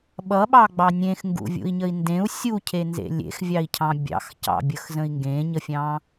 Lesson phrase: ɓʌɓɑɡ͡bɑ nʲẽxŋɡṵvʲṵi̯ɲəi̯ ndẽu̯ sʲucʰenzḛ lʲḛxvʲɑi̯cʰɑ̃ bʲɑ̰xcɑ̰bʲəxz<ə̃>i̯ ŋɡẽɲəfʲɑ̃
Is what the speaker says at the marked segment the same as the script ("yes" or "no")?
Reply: yes